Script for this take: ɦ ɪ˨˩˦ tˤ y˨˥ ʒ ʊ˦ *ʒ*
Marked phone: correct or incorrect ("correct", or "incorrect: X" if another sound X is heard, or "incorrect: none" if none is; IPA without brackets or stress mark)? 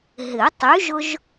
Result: correct